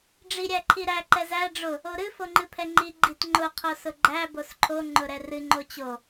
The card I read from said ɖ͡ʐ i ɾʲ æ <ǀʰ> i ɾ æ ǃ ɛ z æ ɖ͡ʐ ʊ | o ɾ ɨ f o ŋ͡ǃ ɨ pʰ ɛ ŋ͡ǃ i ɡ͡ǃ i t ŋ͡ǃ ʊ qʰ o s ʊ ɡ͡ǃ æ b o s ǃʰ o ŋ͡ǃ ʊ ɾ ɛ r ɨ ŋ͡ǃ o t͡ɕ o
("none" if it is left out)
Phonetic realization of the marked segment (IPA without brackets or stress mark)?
ǃʰ